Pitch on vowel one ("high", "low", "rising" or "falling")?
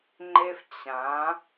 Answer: high